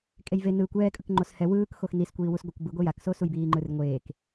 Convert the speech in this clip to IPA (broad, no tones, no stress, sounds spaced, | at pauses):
kʼ e j v e n ɯː kʷ ɛː kʼ ɯ k ŋ͡ǃ o s h ɛ w ɯː k x o x n i s kʷ iː w u s ɡʷ ʌ kʷ b ɯ ɡʷ e j a k s o s u j b iː ŋ͡ǃ ɯ r ŋʷ eː k